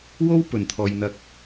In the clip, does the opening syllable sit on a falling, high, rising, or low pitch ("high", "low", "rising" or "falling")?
high